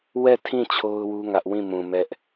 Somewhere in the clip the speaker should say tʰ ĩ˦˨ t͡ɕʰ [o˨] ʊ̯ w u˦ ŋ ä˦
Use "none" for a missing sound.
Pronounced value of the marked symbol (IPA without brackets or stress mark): o˦